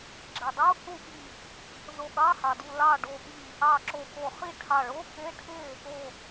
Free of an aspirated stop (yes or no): no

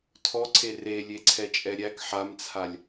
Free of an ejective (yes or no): no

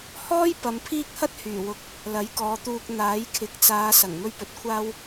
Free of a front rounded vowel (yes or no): no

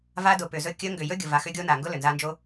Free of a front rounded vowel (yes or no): no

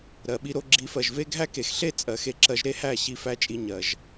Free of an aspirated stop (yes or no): yes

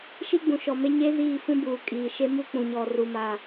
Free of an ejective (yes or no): no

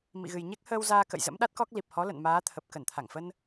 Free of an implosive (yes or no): no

